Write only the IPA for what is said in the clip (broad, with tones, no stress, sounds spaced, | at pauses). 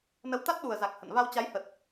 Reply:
n ə˨˦ w t̪ a˦˥ t̚ ɗ u˨˩ ə̯ z a˨˩ k̚ h ə̰˧˨ n v a˧ w t͡ɕ a˨˦ j h ə˨˩ t̚